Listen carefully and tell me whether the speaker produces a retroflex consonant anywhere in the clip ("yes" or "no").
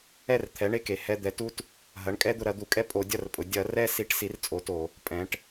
yes